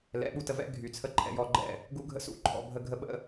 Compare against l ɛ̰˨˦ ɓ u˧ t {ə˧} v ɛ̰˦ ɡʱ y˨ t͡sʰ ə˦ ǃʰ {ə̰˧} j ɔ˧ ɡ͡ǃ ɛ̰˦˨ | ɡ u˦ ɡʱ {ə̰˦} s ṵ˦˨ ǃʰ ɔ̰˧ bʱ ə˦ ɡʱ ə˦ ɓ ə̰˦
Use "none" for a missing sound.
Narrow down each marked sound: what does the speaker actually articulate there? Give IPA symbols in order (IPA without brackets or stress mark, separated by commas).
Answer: ə˧, ɛ̰˧, ə̰˦